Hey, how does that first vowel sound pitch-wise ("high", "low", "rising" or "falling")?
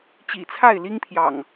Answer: low